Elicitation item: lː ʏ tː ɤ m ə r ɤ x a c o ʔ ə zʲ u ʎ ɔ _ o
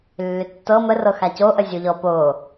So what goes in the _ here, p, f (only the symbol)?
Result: p